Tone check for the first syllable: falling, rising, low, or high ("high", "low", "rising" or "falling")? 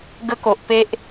high